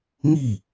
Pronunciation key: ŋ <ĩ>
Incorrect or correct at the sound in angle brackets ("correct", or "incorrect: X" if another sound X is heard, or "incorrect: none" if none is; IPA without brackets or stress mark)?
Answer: incorrect: i